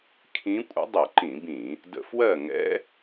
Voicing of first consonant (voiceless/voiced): voiceless